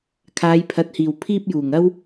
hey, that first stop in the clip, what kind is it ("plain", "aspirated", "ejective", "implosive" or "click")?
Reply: aspirated